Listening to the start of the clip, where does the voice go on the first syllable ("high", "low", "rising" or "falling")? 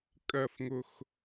low